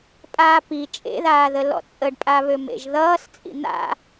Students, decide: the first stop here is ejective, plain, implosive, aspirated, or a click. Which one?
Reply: ejective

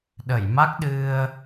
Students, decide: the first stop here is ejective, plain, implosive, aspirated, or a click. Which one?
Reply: implosive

